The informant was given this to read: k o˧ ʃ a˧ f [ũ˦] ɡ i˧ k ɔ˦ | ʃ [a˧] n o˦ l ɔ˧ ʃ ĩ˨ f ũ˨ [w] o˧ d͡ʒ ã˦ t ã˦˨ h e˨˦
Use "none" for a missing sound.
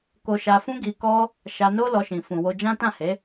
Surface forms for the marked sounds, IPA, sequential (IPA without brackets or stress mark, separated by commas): ũ˦, a˧, w